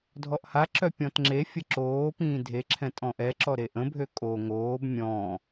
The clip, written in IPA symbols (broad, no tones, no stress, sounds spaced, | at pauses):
dʱ ɔ ʔ h a ǁ œ pʲ ɔ̃ t ŋ͡ǁ e fʲ ə ǁ oː p ĩː dʱ e ǁʰ ɛ̃ tʼ ɔ̃ ʔ ɛ ǁ ɔ ɾ e ʔ ə̃ bʱ ø kʼ o ŋ oː b mʲ ɔ̃